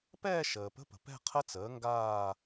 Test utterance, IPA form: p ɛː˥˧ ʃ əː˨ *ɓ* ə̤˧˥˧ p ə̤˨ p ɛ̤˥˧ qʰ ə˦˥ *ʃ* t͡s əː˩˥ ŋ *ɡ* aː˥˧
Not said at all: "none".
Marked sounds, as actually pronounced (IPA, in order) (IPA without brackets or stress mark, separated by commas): p, none, ɡ